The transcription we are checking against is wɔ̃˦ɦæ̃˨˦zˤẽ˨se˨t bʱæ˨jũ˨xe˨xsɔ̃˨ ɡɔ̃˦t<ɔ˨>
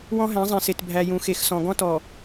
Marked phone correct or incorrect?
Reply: correct